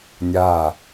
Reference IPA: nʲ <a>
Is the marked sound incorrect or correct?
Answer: correct